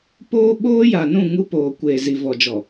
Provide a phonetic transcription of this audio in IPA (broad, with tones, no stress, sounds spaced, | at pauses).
p oː˦ ɓ oː˦ j a˨ n ũ˦˨ ŋ u˦ p oː˨ kʷ eː˨ z i˨ v ɔ˨ d͡ʒ ɔ˨